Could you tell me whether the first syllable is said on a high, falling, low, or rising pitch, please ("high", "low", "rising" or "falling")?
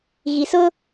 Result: low